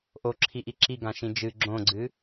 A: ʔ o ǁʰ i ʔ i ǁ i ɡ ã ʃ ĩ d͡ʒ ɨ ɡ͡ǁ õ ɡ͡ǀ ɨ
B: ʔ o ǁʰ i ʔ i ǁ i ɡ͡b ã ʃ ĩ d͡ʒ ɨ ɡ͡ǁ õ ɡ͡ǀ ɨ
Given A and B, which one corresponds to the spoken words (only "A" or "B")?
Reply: A